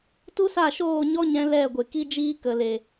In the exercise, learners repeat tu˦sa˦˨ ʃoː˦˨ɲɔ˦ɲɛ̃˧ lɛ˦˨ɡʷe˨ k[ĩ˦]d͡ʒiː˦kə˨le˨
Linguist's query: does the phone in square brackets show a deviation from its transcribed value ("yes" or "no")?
yes